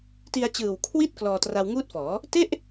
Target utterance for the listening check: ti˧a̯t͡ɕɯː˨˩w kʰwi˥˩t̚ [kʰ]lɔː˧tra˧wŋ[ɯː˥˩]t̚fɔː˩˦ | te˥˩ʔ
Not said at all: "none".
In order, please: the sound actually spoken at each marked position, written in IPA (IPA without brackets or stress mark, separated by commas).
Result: k, uː˥˩